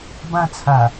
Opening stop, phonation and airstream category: plain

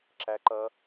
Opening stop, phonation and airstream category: click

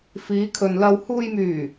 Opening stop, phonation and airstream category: aspirated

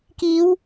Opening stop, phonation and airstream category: plain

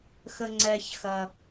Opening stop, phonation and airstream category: click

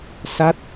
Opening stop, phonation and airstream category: plain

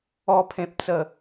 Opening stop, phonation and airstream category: aspirated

